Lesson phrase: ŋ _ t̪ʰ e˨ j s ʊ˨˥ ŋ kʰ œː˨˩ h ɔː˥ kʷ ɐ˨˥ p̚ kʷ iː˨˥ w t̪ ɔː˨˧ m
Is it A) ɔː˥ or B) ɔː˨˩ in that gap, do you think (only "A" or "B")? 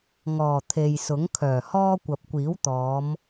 B